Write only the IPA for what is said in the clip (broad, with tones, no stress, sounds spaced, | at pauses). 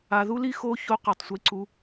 a˧ ð u˦ l i˦ x o˦ ç o˦ q ʌ˦˨ tˤ sʷ i˦ ǀ u˦